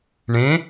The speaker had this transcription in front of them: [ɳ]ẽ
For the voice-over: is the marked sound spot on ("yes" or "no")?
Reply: yes